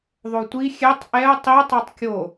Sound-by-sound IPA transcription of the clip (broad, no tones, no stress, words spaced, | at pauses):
ðˤotʷi xʲɛtˤ ʔɛʊ̯ tˤi tˤotˤkʲo